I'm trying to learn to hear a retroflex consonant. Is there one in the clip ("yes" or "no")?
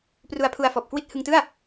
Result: no